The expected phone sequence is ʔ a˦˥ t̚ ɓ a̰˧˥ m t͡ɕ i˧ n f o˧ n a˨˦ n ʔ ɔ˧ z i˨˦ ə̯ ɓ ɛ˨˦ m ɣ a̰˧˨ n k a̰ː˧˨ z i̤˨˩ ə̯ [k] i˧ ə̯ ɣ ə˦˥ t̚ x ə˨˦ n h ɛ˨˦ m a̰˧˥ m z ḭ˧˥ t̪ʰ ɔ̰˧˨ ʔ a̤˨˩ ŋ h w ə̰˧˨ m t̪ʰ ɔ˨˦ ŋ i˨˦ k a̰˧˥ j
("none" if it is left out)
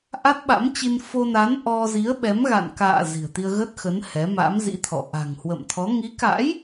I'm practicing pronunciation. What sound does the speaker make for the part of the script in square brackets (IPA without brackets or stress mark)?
t̪